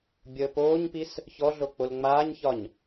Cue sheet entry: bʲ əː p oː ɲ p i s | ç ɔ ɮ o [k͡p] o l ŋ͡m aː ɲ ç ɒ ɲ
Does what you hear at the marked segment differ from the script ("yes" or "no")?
no